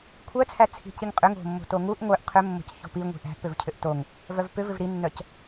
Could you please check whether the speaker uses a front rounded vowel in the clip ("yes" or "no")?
yes